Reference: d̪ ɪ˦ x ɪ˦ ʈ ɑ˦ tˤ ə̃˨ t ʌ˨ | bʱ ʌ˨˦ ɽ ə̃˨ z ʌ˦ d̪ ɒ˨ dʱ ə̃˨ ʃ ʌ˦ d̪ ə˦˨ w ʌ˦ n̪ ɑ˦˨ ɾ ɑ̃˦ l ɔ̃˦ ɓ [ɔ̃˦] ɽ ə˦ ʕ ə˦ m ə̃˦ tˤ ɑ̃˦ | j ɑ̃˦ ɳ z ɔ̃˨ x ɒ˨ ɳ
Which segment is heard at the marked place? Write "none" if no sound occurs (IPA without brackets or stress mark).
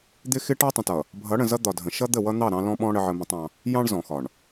ɔ̃˦